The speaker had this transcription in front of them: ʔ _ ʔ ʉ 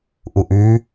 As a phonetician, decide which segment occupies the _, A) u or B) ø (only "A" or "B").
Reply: A